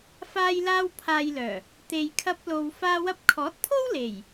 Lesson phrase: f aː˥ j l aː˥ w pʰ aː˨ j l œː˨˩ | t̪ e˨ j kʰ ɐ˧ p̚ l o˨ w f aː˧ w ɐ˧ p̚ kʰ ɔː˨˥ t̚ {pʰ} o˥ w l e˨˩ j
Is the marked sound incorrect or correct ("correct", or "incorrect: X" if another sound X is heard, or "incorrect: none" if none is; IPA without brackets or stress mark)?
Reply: correct